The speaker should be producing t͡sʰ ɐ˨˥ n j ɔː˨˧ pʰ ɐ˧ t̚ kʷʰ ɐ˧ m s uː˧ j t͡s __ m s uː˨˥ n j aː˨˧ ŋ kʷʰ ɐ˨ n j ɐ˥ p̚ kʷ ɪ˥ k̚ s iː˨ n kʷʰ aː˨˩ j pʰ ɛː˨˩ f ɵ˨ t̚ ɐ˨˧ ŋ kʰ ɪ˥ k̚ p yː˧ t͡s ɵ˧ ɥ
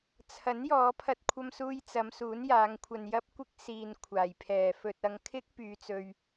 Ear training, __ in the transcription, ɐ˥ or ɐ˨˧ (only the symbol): ɐ˨˧